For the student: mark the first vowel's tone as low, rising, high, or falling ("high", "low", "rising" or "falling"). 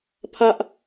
high